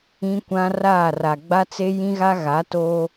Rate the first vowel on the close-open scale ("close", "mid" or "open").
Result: close